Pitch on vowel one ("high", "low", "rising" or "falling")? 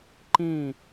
falling